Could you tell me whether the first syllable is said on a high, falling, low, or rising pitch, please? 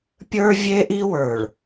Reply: high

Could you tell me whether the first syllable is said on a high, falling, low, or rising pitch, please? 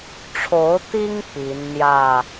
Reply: rising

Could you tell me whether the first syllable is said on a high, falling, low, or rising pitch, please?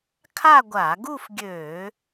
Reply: falling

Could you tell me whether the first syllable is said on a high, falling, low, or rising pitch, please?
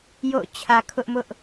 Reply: falling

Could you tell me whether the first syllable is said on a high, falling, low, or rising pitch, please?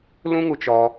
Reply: high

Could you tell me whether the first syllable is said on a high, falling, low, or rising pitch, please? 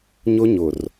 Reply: high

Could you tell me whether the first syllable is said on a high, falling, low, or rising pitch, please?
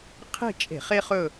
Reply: falling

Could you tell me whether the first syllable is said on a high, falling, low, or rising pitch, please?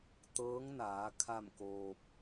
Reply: rising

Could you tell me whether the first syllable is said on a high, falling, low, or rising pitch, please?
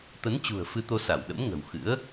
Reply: rising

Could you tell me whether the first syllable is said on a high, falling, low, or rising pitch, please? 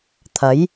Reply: rising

